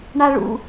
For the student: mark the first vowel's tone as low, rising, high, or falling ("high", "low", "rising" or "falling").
high